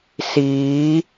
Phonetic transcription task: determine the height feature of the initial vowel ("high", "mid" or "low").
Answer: high